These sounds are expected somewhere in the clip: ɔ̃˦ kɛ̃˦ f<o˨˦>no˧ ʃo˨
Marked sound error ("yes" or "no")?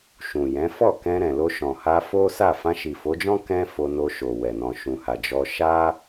yes